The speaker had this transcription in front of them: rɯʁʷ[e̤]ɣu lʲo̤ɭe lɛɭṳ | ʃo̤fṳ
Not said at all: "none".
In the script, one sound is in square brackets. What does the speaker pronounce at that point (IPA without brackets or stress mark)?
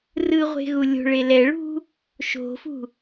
e̤